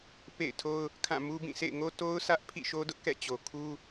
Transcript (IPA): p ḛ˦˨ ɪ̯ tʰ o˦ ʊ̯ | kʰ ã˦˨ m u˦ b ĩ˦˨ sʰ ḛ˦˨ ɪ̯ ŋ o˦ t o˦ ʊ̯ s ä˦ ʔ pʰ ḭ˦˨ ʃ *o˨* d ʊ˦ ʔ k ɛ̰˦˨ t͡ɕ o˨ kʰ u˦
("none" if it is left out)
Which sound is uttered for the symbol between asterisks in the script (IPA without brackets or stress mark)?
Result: o˦